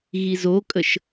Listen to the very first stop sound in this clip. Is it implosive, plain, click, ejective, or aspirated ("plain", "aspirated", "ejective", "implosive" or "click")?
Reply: ejective